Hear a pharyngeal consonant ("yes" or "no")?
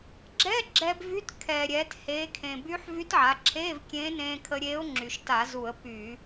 yes